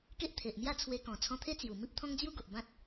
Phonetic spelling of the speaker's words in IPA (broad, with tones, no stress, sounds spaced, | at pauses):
k e˦ ʔ t̪ʰ e˨ ʔ m j a˥˧ t͡sʰ w e˧ k ɔ̃˨˩ t͡sʰ ɔ̃˧ t̪ʰ e˦ t͡s j u˨˩ m i˦ p̚ t̪ʰ ɔ̃˦ ŋ d͡z j u˦ ɡ o˨ ʔ b ã˦ t̚